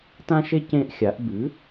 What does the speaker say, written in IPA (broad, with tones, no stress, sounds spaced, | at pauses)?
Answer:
t ã˦ ʃ e˦ c ẽ˦ ʔ xʲ a˩˥ ʔ b ʉ˩˥